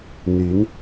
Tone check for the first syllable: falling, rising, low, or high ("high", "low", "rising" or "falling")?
rising